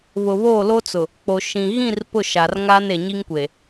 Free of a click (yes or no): yes